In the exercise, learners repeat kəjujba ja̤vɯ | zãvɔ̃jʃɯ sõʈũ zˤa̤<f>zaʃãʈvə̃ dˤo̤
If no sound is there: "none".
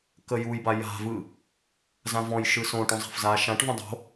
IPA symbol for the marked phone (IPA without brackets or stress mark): f